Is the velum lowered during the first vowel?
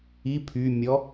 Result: no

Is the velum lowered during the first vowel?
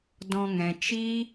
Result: yes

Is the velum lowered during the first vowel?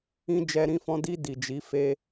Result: yes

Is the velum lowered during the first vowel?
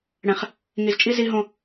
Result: yes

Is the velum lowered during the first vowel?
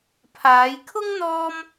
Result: no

